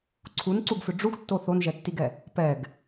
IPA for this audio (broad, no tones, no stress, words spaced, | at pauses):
ǀʰunǀuɡfʏ ɖ͡ʐuɡtːo θonʒɛtːiɡɛ | pɛɡ